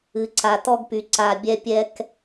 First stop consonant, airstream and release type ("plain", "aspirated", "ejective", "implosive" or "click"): click